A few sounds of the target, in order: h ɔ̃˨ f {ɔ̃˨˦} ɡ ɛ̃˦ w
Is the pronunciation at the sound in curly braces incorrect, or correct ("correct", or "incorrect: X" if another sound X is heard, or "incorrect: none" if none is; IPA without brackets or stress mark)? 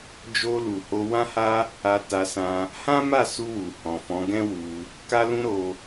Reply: correct